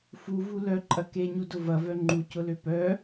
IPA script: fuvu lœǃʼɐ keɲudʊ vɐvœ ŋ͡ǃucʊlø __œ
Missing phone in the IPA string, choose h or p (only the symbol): p